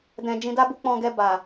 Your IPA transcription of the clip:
d ɛ̃˧ d͡ʒ ĩ˧ d a˦ b u˦ k͡p ɔ̃˧ ɡ ɛ˧ b a˨

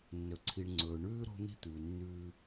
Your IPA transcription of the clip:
nː ɵ˨ ǀʰ i˨ ɳ ŋ͡ǀ ɵː˨ ɳ ʉː˦ ɾ o̤˦ n̪ i̤˦ t̪ ʉː˨ nː ʉː˦

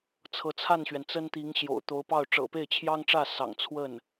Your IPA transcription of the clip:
t͡sʰ ɤ˧˥ t͡sʰ a˥˩ n ɕ ɥ ɛ˩ n t͡s ə˥ n t̪ i˧˥ ŋ ɕ j o̰˨˩ ʊ̯ t̪ o˧˥ ʊ̯ p ɑ˥˩ ʊ̯ ʈ͡ʂ ɤ̰˨˩ p e˥˩ ɪ̯ t͡ɕʰ j ɑ˥ ŋ ʈ͡ʂ ä˥˩ s ɑ̰˨˩ ŋ t͡sʰ w ə˥˩ n

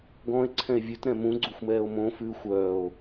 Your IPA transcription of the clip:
ɡ ɔ̃ e̯ ǀʰ ɛ̃ e̯ vʲ ʉ t ɾ ɛ̃ m ũ ɡ͡ǀ u xʷ m ɛː o̯ m õ f ʉ xʷ œː o̯

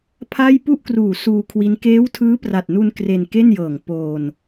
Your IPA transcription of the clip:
pʰ a˥˩ j p u˥˩ ʔ k r uː˨˩ s uː˧ kʰ w i˦˥ n k eː˦˥ w tʰ ɯː˦˥ p r a˨˩ t̚ n u˧ n k r e˧ n k e˥˩ n j ɤː˨˩ ŋ p oː˧ n

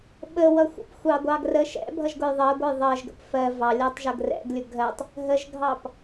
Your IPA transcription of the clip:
ɓ ə w ʌ xʷ ə̰ p xʷ ɑ ɡʷ ɑ ɡ r ə ʃ ɛ̰ bʱ ʌ ʒ ɡ ʊ j ðˤ ɜ ɡʷ ʌ j ðˤ ɜ ʒ ɡ ə̰ p f ɜ v ɑ lʲ ɜ tˤ ʒ ʌ ɡ r ɛ̰ ɡ lʲ ʊ ɡʱ ɜ tˤ | ɦ ə ʒ ɡʱ ɑ p

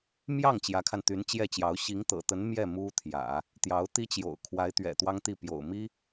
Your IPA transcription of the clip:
m j ɑ˥˩ ŋ t͡ɕ j ä˧˥ kʰ a˧ n t̪ y˧˥ n t͡ɕ j ɛ˥˩ t͡ɕ j ɑ˧˥ ʊ̯ ɕ i˧˥ ŋ t̪ ɤ̰˨˩ t̪ ə˧˥ n m j ɛ˥˩ m u˥ t̪ʰ j ä̰˨˩˦ | t̪ j ɑ˧˥ ʊ̯ t̪ i˥ t͡ɕ j o̰˨˩ ʊ̯ kʰ w a˧˥ ɪ̯ t̪ ɥ ɛ̰˨˩ t̪ w ɑ˥ ŋ t̪ i˥˩ p j o̰˨˩ ʊ̯ m i˥

